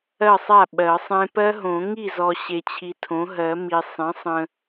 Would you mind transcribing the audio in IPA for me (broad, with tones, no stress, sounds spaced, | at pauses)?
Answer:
ɜ˥˩ sˤ a˥˩ ɓ ɜ˨˩˦ sˤ ẽ˦˥ p ɜ˦˥ ɦ õ˨˩˦ ŋ i˥˩ z ɔ˨ ɕ e˨ t͡ɕʰ i˨ tʰ õ˩˥ ɦ ɜ˨˩˦ m i˨ sˤ ẽ˩˥ sˤ ə̃˨